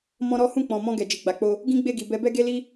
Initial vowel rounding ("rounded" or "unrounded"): rounded